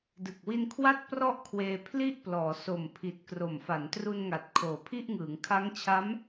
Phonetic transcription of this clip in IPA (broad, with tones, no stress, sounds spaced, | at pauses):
d ɯ˨˩ k̚ w i˧ n kʰ w a˦˥ t̚ p r ɔ˥˩ ʔ kʰ w eː˧ pʰ l i˥˩ ʔ p l ɔː˩˦ s o˨˩ m pʰ i˨˩ t̚ k r o˨˩ m f a˩˦ n t r u˧ n ŋ a˨˩ t̚ kʰ oː˨˩ pʰ i˥˩ ʔ ŋ ɯː˩˦ ŋ kʰ a˦˥ ŋ t͡ɕʰ a˦˥ m